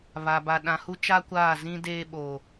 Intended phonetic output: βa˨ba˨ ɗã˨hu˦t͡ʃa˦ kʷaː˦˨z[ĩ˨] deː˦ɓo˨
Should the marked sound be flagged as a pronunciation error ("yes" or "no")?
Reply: yes